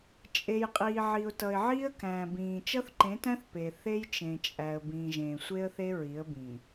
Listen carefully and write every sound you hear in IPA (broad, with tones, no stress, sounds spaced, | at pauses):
t͡ʃʼ e˨ j qʼ iː˨ ʕ i˨ ʊ̯ t ʌ˨ ɪ̯ ʕ iː˦ ə̯ k æ̃ː˨ b ĩː˨ t͡ʃ ʌ˦ θ ǃ ẽ˨˦ t æ̃˦ θ p e˨ θ e˦ j t͡ʃ ẽ˨ t͡ʃʼ æ˨ ə̯ b ĩː˨ ʒ ẽː˨ sʷ e˦ ə̯ θ e˦ ɹ i˨˦ ə̯ b ĩ˨